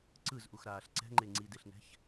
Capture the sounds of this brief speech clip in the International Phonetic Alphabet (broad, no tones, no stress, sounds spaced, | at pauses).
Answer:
ǀ ɯ z ʔ u x ɾ aː ɬ ǀ ɛ̤ ŋ͡ǃ e ŋ͡ǀ i d e ɬ n ɛ̤ ç